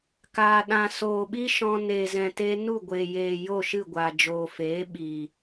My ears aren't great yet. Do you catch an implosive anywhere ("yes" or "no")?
yes